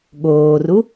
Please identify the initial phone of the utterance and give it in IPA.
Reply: ɠ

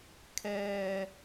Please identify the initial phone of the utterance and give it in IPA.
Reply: kʰ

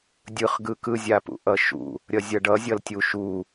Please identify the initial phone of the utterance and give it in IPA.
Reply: dʲ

